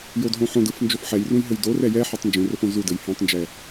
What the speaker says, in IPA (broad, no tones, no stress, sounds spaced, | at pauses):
j o d ɦ õ ħ õ d ɯ f n d͡ʒ o f ħ ɛ j r ũ j ɦ ɘ j d o r ɛ j ɛ ħ ɛ tˤ n d͡ʒ ũ r ɵ f õ z u d ɘ j h ɛ̃ tˤ n d͡ʒ ɛ